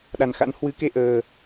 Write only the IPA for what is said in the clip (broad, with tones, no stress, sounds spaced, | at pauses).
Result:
ɗ a˧˩ n x a̰˧˥ n h w ɨ˨˦ k e˧ ʔ əː˧